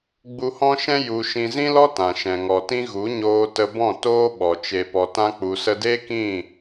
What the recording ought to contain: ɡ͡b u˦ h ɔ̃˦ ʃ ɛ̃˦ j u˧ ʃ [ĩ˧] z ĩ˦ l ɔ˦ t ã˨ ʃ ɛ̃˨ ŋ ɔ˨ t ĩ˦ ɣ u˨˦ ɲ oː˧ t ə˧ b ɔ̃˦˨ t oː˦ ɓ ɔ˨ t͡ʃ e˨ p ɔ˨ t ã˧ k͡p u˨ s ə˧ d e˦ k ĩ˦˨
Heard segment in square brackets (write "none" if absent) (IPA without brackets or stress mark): ĩ˧